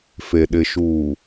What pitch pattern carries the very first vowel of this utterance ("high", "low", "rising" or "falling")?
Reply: low